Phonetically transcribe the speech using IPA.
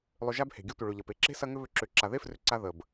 lˠ ʏ˧ ʒ a˦ b h e̤˨ ɡʲ ə˧ tʷ ə˨ ɭ ʏ˨ ʎ ɐ˨ p e˧ ǁ e̤˦ s ɐ˧ ŋ ʏ˦ β ʏ˧ ǁ ʏ˨˦ ǁ a˨ ð e˦ f r ʏ˧ ǀ a˧ ð ə˨ b

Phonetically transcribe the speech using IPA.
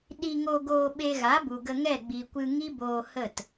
ɗ i˧ ŋ o˧ ɡ oː˧ ɓ e˧ ɣ a˨˦ b u˨ ɡ ə˧ ŋ ɛ˦˨ ɡ͡b i˨ kʷ ɨ˧ ŋ i˦ b oː˧ h ə˦˨ t

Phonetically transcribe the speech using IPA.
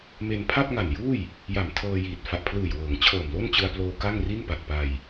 m e˧ n pʰ a˥˩ p̚ ŋ a˨˩ n j uː˥˩ j | j a˨˩ m tʰ ɤː˧ j iː˨˩ t̚ f a˨˩ ʔ pʰ l ɯː˨˩ j w ɤː˩˦ ŋ t͡ɕʰ ɤː˨˩ m l o˥˩ n t͡ɕ ɯ˧ a̯ p l oː˧ k a˥˩ ŋ r i˥˩ n p a˨˩ t̚ p a˧ j

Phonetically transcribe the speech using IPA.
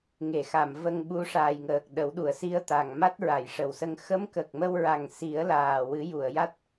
ŋ e˨˩˨ x a˨˩˨ m v ə˧ ŋ ɓ u˧˥ ʂ aː˨˩ j ŋ əː˨˩ k̚ ɗ ə˨˩˦ w ɗ u˨˩˨ ə̯ s i˧ ə̯ t̪ a˨˩ ŋ m a˦˥ t̚ ɹ a˨˩˨ j ʂ ə˨˩˨ w s ə˧ ŋ x ə˧˥ m k ə˨˩ k̚ m ə˧ w ɹ a˨˩ ŋ s i˨˩˦ ə̯ l aː˨˩ w ɨ˨˩˦ j u˨˩˨ ə̯ j a˦˥ t̚

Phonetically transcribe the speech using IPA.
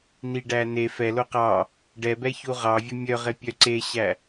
n i ɖ æ n e f ɛ l o q ɑ | ɖ ɛ b ɛ ç u ʁ ɑ vʲ ɵ mʲ œ ʁ e pʲ œ ǀ e ɕ æ

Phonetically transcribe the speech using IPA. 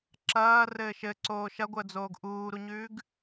ǁ ɐː r ɘː ʃ ɘ ǀ oː ʃ ɐ ɡʷ əː d͡z oː ɡ ʔ uː ɾ u ɲ ʉː ɡ

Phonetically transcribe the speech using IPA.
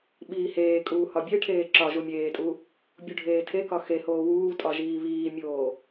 ɓ iː h eː kʼ uː h ɒ bʲ e ʈʰ eː ǁ ɒ ʒ u mʲ eː tʼ u | bʲ u ɖʱ eː tʰ e k ɒ x e h oː w uː tʼ ɒ ʒ iː β iː mʲ oː

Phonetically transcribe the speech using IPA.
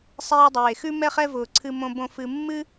sˤ eː˦ dˤ eː˩ x ʉ˥ m ɛ˦ χ ɛ˦ v ʊː˩ ǀʰ ɨ˨ m õ˨ b õ˨ f ɨ˨ mː ɨ˥

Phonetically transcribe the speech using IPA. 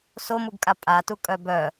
s o m u ɡ kʼ a pʼ a t u kʼ œ b œ

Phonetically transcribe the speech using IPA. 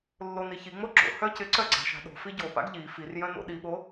lː o n i ç i ŋ͡m o ɡ͡ǁ o̰ h œ c ɪ ǀ œ ɡ͡ǀ a̤ ʃ a̤ ɗ o̤ f i ɟ o p a̰ ɡ ʎ i f i r j œ̃ n o̰ ɗ i ɓ o

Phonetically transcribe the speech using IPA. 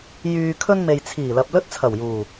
j yː˧ kʰ ɵ˥ n m e˨ j t͡sʰ iː˨˩ l ɐ˨ p̚ l ɵ˥ t̚ t͡sʰ ɐ˨˩ w j uː˨˩

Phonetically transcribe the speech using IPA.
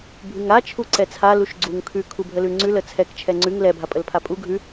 bʱ ʉ ŋ a t͡ʃʰ u ǀ ɛ t͡sʰ a l u ʃ ɡ͡ǀ u ŋ kʰ ʉ kʰ u bʱ ə l ʉ ŋ͡ǀ ʉ l ə t͡sʰ ɛ k t͡ʃʰ ɛ ŋ͡ǀ ʉ ŋ l ɛ bʱ a pʼ ə l pʰ a pʼ u ɡʱ ʉ

